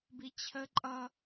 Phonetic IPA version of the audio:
b i t͡ɕʰ ə ǃʼ ʌ

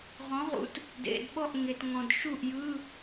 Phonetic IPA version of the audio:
ʁ ɔ̃˩˥ ʁ ṵ˩˥ t | d ḛ˩ d ɓ ɔ˥˩ ʔ ŋ e˩ t ŋ ɔ̃˩ d ʃ u˥˩ ʔ j ɯ˧˥˧

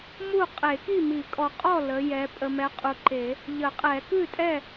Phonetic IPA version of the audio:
m u˥˨ qʼ e˨˩˦ k i˥˨ m i˨˩˦ kʼ ɔ˨ qʼ ɔ˥˨ l ə˨˦ j ɛ˨˦ pʼ ə˨ m ɛ˨˦ qʼ u˨ ǃ e˨˩˦ | ʎ ə˨˩˦ qʼ ɛ˨˩˦ k ʉ˥˨ tʼ ɛ˥˨

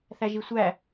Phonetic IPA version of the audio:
θ æ ʒ i sʷ æ

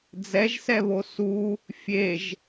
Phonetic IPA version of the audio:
d͡z ɛ ʒ s ɛ β o s u | fʲ e ʒ

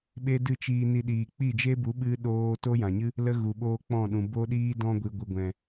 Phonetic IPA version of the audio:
ɓ e˦ d ɨ˦˨ t͡ʃ iː˧ n i˧ ɗ iː˨ k͡p i˦˨ d͡ʒ e˦ b u˨˦ ɓ ɨ˦ ɗ oː˦ t o˦ j ã˨ ɲ ɨ˦ | l ə˦ ɣ u˨ ɓ oː˦ k͡p ɔ̃˦˨ ɗ ũ˨ b o˦ ɗ iː˦ d ɔ̃˧ ɡʷ i˨ ɡʷ ɨ˨ ɡʷ ɛ̃˨

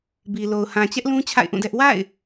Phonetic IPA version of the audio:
b i˨ l o˨ ʊ̯ h ã˨ t͡ɕ ɛ˦ ʔ l ũ˦ t͡ɕʰ a̰˦˨ ɪ̯ ʔ ũ˦˨ d ɛ˦ ʔ w a̰˦˨ ɪ̯

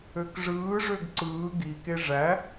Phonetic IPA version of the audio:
ø k ʐ ɯː ʐ ø ɡ ǀ ɯː ɡ i k e ʐ æ

